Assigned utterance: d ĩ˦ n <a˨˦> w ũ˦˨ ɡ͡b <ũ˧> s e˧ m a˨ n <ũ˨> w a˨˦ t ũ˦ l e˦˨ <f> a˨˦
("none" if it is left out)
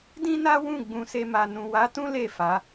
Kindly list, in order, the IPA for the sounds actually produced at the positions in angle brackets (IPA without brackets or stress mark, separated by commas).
a˦, ũ˧, ũ˨, f